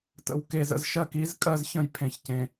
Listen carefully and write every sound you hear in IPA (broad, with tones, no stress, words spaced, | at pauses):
tə̰˨wke˨z ə̰˨zʃɜ˨ki˨˦z kʼɜ˦zçə̃˦j pʰẽ˨çcẽ˨